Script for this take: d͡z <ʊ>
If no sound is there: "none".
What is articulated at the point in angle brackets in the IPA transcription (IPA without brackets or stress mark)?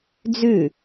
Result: ʉ